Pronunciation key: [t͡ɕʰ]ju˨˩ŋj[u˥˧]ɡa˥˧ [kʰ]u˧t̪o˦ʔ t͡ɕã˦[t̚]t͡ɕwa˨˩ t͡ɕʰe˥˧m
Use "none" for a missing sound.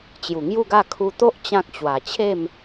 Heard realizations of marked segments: t͡ɕ, u˥˧, kʰ, k̚

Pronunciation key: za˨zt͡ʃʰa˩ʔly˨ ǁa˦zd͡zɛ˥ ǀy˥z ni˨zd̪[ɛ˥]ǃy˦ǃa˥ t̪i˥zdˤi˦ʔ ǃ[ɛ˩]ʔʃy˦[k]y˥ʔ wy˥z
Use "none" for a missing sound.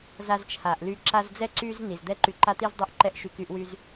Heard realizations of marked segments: ɛ˥, ɛ˥, k

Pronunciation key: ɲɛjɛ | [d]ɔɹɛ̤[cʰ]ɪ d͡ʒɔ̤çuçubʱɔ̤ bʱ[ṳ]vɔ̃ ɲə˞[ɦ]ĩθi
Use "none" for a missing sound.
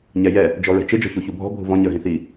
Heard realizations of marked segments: d͡ʒ, t͡ʃ, ṳ, ɦ

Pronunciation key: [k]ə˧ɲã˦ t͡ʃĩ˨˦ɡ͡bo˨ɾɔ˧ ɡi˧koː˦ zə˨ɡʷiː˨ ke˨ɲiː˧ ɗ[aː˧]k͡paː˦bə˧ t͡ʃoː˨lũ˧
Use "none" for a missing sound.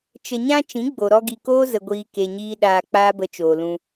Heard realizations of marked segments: t͡ʃ, aː˧

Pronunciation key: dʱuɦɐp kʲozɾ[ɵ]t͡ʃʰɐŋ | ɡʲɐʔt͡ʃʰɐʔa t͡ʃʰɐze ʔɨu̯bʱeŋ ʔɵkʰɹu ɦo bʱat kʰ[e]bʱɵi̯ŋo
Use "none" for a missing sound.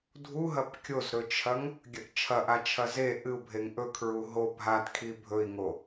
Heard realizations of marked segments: ɵ, i

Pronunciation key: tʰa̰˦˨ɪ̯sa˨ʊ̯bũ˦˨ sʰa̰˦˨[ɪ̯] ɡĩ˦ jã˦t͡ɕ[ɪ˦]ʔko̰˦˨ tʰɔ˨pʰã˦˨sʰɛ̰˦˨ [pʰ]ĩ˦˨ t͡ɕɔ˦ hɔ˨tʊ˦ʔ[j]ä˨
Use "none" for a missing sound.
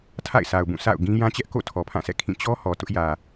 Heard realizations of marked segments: ʊ̯, ɛ˦, kʰ, j

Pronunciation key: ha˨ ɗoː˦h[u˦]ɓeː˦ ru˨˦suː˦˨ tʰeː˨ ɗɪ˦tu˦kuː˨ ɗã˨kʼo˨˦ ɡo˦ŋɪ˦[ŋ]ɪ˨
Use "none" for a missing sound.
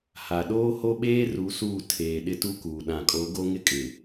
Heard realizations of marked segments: o˦, kʼ

